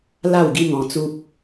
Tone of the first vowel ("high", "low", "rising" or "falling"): falling